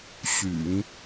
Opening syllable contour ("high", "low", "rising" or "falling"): low